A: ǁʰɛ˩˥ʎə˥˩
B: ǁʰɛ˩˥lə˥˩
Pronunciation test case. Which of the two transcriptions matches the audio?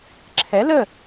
B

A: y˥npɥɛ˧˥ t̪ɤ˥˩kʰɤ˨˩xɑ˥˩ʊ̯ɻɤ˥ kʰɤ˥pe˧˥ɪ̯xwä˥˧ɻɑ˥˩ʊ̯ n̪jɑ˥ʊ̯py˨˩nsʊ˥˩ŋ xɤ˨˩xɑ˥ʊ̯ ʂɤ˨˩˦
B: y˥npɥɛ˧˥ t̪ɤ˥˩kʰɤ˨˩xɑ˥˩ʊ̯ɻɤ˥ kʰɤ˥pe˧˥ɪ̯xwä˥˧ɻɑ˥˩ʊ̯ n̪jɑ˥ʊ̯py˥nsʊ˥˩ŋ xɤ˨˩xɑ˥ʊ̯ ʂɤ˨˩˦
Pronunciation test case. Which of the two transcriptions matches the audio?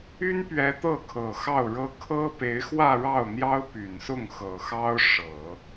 A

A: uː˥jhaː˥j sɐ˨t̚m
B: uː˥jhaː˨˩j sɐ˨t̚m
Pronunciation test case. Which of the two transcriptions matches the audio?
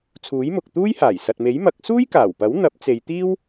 B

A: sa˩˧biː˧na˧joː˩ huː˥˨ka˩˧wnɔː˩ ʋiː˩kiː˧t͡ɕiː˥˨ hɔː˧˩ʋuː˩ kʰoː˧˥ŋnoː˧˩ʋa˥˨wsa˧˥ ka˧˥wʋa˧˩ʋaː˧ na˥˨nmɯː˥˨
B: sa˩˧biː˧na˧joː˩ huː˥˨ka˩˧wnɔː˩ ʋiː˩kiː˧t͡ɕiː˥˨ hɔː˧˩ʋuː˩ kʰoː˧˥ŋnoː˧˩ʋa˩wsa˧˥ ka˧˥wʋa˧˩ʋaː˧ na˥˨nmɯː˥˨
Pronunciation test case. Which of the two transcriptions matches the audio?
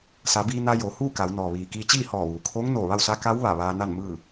A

